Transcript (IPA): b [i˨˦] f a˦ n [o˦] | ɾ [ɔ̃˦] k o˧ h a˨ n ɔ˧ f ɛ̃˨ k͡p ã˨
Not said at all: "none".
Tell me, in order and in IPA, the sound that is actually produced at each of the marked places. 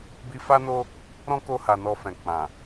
i˧, o˦, ɔ̃˦

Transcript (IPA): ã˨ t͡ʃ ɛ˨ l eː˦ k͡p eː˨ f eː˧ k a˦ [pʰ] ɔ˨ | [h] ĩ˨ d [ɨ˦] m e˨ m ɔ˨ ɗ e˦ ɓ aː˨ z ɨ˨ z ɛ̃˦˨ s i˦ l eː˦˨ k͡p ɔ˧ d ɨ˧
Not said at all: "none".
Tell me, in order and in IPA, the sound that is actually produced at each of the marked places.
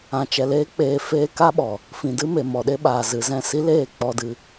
ɓ, f, ɨ˦

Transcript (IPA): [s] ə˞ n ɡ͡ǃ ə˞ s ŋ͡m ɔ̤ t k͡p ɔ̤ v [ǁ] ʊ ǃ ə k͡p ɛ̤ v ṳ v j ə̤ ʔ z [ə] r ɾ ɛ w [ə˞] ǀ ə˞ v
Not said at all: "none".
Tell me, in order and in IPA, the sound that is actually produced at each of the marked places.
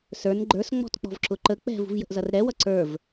s, ǁ, ʌ, ʌ

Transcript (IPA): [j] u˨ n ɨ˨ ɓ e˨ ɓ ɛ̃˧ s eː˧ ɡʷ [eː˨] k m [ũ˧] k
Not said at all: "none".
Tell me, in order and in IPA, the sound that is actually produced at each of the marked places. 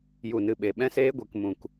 j, e˨, ũ˨

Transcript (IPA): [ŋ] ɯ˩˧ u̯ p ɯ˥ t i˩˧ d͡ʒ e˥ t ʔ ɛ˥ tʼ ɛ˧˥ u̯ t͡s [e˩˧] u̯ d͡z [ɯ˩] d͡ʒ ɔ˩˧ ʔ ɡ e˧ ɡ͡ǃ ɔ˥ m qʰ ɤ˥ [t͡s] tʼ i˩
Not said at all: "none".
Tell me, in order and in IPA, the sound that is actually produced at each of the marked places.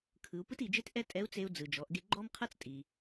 kʰ, e˧, ɯ˩, t͡s

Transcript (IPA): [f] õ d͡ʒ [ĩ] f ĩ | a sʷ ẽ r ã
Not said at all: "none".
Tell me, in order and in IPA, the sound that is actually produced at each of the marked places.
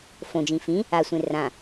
f, ĩ

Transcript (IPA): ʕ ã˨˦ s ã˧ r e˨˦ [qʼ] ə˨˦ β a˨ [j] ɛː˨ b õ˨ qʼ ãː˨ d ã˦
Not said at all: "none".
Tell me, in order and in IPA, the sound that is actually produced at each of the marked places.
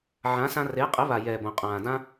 qʼ, j

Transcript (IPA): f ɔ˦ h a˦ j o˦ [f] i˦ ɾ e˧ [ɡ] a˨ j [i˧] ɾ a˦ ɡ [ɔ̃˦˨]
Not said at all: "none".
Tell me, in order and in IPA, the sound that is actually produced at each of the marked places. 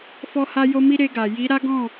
m, ɡ, i˨˦, ɔ̃˦˨

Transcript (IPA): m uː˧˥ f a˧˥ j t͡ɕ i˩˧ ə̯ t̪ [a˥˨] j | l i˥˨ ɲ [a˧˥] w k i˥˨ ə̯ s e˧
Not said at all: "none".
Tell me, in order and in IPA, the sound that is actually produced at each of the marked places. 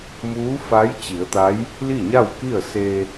a˧˥, a˥˨

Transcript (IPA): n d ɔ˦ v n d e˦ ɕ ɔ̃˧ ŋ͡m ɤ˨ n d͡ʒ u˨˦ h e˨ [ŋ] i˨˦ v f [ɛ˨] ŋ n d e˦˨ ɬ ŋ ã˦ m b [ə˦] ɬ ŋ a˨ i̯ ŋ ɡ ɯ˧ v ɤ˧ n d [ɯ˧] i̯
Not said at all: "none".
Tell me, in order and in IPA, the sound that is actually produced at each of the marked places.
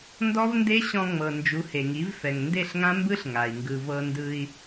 ŋ, ɛ˨, ɯ˦, ɯ˧

